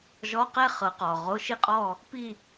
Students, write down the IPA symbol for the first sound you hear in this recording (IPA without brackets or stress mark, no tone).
ʒ